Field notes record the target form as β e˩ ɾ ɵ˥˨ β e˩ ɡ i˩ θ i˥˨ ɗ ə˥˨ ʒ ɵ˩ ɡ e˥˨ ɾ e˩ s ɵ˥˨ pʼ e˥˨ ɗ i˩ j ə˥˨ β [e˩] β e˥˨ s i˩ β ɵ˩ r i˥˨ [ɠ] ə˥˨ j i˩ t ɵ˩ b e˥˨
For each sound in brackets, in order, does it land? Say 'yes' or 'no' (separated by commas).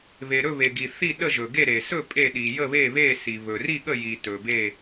no, yes